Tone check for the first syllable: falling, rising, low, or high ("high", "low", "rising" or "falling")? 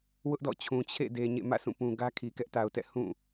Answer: high